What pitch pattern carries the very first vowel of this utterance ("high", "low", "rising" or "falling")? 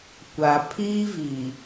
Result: low